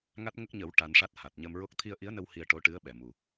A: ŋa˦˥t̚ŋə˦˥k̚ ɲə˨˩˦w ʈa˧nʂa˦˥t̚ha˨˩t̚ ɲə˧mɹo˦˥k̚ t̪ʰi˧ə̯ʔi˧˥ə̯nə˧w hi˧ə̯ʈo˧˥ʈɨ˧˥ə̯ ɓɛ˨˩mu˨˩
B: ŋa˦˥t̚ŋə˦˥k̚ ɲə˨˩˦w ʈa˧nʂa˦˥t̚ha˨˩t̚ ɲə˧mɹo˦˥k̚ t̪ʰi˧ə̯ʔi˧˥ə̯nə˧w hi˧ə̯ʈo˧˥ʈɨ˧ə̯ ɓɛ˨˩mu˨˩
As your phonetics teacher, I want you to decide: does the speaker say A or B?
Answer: A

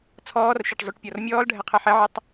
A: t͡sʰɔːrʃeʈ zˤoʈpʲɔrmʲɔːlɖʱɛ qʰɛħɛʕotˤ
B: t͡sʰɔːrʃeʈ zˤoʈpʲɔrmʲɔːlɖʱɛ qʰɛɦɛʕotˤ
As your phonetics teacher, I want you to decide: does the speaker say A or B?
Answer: A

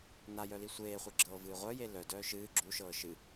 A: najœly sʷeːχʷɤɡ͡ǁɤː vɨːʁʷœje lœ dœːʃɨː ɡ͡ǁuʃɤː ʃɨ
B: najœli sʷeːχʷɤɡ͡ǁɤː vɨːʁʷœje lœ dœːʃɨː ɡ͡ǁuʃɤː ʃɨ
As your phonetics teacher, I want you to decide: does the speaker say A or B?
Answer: B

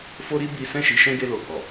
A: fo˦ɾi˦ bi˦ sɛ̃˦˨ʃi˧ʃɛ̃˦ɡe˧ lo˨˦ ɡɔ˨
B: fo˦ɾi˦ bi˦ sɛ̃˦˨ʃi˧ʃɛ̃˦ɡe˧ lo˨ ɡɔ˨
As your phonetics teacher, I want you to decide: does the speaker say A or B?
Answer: B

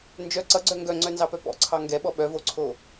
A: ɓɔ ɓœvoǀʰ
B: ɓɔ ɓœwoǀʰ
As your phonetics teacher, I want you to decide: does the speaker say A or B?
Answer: A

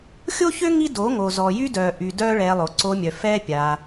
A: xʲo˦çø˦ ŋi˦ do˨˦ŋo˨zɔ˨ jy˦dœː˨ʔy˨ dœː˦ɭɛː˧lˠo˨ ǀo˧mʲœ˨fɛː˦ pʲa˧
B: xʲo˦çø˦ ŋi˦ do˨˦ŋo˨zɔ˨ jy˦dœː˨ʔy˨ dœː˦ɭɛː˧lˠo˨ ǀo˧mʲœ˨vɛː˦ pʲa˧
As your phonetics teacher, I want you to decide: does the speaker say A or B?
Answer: A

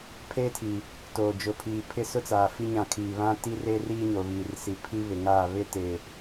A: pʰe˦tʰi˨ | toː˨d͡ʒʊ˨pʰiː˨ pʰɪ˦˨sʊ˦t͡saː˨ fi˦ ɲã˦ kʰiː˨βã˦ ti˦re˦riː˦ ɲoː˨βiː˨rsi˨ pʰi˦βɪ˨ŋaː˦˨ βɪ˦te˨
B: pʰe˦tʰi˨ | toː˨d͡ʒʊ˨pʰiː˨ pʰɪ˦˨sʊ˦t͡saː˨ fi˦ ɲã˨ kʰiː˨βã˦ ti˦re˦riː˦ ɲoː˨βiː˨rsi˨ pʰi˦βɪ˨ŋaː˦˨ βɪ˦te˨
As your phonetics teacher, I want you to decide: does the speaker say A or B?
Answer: B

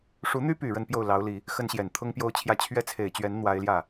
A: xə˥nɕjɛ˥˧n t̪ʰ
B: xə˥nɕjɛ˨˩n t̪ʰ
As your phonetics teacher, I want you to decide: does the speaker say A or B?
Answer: B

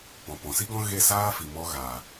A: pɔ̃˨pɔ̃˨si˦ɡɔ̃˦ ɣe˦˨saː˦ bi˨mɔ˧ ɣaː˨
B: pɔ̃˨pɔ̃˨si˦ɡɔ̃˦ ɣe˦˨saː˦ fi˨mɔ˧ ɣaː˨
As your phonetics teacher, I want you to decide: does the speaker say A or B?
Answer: B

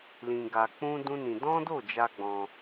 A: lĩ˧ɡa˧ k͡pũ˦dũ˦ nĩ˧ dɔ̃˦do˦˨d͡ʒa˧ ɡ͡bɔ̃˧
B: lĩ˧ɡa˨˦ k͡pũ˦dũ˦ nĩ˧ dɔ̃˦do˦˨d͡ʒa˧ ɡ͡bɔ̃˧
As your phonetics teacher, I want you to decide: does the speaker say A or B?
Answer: A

